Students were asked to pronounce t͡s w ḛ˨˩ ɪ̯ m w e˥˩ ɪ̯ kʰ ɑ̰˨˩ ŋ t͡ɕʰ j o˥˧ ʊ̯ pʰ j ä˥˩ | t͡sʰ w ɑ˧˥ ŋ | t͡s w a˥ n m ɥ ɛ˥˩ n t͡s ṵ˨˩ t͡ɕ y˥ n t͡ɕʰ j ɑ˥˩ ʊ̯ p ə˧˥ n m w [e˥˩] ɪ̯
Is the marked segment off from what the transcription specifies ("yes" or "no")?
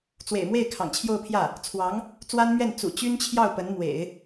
yes